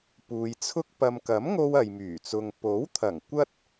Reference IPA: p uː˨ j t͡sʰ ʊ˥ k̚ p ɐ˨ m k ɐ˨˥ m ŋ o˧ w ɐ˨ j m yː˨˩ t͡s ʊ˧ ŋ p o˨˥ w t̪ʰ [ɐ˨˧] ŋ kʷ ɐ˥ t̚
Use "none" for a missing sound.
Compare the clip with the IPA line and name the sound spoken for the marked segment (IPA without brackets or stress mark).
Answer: ɐ˨˩